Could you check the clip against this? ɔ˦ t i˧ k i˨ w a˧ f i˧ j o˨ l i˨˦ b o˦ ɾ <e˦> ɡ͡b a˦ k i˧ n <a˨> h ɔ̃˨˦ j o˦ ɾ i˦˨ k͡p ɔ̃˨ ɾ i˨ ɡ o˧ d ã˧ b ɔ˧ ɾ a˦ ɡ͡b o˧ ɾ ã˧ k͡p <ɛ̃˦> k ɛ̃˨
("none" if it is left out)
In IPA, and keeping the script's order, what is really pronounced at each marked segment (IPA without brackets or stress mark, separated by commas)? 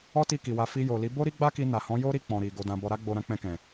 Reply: i˦, a˨, ɛ̃˧